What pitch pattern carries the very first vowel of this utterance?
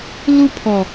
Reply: high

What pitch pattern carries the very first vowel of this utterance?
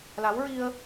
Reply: rising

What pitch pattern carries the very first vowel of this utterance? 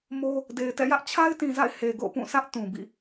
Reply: high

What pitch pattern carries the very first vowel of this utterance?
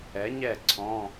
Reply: rising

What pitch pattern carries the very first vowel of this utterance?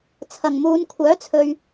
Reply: low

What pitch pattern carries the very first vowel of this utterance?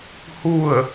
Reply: falling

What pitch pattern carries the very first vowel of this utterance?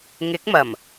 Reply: rising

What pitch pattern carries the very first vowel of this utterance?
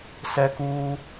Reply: high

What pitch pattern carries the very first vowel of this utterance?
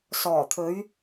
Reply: low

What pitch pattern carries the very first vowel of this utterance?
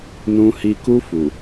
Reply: high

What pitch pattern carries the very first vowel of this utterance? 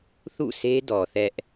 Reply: falling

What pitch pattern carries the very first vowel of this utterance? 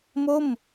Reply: falling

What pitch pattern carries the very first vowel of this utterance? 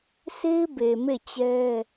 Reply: high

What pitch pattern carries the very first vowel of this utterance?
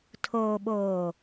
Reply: low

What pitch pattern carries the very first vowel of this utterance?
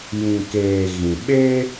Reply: low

